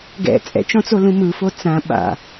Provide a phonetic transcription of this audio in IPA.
ɡɛ̰ t͡sʼɛ̰t͡ʃɔ̃t͡solũ mɯfo t͡sã ɓa̰

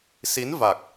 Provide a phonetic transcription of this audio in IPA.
si˨˦nva˨˩k̚

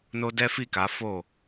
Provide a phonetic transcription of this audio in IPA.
no˧ dɛ˦fi˦˨ka˨˦fo˦˨

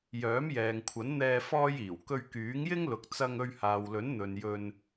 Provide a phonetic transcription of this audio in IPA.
jœː˨˥mjɛː˨ŋkʷʰɐ˨˥nn̪ɛː˧ fɔː˥jiː˨˩w kɵ˧ɥkyː˨˥ŋjɪ˥ŋlʊ˨k̚ t͡sɐ˧ŋɵ˧ɥ haː˨wlɵ˨˥n n̪ɵ˨njɵ˧n

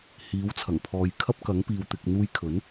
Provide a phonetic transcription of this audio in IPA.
hiː˨˥wt͡sʰɐ˨˩ŋpʰɔː˨j kʰɐ˥p̚kɐ˨˥ŋpiː˨w t̪ɪ˨k̚n̪uː˧jkʰɵ˨˥n

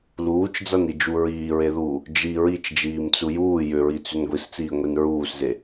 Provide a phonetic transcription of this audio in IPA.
luːt͡ʃd͡zanid͡ʒu ɹiːɹeðuː | d͡ʒi ɹit͡ʃd͡ʒiːmt͡su juː jʏɹit͡sʏn ɡʷist͡siːŋʷin ɹuːsze

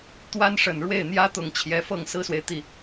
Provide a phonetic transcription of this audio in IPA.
t̪wa˥nʂə˨˩nɻwe˥˩ɪ̯ n̪jä˥t̪ʊ˨˩ŋ t͡ɕʰjɛ˧˥fɤ˥˩ŋ sɹ̩˥swe˨ɪ̯ t̪i˥˩

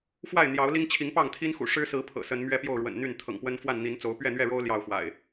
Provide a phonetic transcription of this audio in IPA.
fwa˥˨ɪ̯n̪jɑ˨˦ʊ̯li˦ŋ t͡ɕʰi˨˦ŋpɑ˥˨ŋ t̪ʰi˦n xṵ˨˩ ʂɻ̩˦sɹ̩˨˦ pʰɤ̰˨˩sə˨˦n mɥɛ˦pjo˥˨ʊ̯ɻwə̰˨˩nn̪y˥˨n t̪ʰɤ̰˨˩ŋpwə˦n fwa˥˨nn̪i˨˦nt͡so˨˦ʊ̯ pɥɛ˥˨n̪ɥɛ˥˨ɻo˦ʊ̯ ljɑ˥˨ʊ̯fwa̰˨˩ɪ̯

